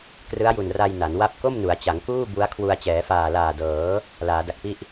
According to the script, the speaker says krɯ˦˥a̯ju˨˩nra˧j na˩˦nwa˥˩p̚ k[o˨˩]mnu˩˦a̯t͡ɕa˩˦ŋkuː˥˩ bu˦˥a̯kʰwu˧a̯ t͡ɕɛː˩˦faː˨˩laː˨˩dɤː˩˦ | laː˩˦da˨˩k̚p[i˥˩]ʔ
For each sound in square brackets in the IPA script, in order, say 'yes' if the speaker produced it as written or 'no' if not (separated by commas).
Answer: no, yes